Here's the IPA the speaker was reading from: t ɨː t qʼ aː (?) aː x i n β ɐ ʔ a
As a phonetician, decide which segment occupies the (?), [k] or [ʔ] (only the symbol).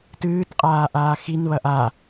ʔ